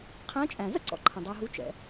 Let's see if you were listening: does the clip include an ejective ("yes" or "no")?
yes